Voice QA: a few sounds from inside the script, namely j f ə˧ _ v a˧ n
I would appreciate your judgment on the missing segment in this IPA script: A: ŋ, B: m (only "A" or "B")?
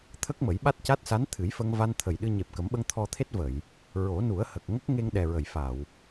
A